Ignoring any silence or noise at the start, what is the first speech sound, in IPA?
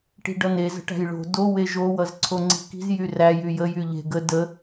ʈ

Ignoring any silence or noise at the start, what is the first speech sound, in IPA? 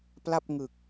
p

